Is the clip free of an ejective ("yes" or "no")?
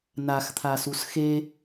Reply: yes